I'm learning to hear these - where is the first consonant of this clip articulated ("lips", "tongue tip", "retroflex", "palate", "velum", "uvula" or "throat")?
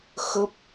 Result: velum